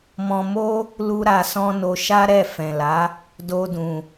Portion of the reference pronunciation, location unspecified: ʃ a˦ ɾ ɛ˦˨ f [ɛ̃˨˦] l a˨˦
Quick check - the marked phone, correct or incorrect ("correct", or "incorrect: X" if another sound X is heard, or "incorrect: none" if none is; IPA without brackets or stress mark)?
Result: incorrect: ɛ̃˨